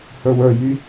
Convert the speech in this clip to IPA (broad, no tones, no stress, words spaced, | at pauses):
hə˞wə˞jy